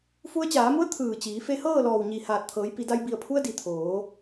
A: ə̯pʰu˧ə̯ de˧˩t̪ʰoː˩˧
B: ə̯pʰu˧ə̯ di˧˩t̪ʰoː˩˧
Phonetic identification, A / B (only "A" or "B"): B